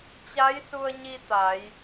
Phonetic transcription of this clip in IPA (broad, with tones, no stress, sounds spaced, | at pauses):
t͡ɕ a˧˥ j s u˧ ə̯ ɲ i˧ t̪ a˩˧ j